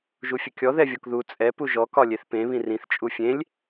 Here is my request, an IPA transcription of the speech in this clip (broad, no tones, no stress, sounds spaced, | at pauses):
ʒ u fʲ ə kʲ ɔ ð ɛ vʲ ɔ k ð u t͡sʼ ɛ p u ʒ ɔ k ɒ lʲ e θ p ẽ β ĩ r ĩ θ t͡ʃʼ u fʲ ẽ lʲ